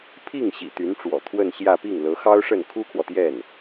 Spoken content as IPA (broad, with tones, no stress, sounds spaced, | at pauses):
pʰ i˥˩ ŋ ɕ ḭ˨˩ t̪ y˧˥ n ʈ͡ʂ w ɔ̰˨˩ t̪ʰ w ə˥˧ n ɕ j ä˥˧ p i˥˩ ŋ l ɤ˧˥ x ɑ˥ ʊ̯ ʂ ə˥˩ n kʰ u˥ kʰ w ɔ˨ t̪ j ɛ˥˩ n